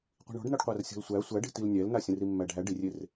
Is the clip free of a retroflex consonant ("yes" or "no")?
no